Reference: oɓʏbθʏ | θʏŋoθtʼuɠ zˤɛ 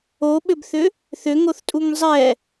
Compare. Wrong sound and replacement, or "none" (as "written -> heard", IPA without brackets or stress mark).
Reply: ɠ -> ŋ